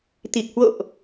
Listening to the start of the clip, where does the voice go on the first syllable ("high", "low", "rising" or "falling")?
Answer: low